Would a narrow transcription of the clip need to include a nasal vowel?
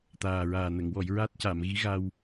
no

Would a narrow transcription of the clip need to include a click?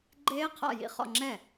yes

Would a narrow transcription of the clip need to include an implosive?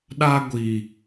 yes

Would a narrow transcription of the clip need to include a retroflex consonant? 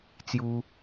no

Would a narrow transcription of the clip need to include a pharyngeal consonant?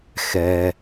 no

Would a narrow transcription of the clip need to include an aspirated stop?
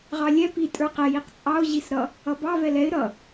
no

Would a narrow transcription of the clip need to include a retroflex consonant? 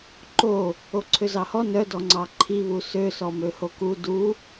no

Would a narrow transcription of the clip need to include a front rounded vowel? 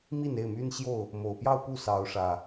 yes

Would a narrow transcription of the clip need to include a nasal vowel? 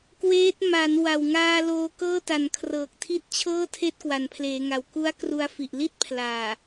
no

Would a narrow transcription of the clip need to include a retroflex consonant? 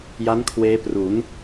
no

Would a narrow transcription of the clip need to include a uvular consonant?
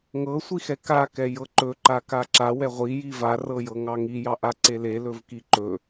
yes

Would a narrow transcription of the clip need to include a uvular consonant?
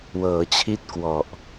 no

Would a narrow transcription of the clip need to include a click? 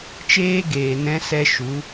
no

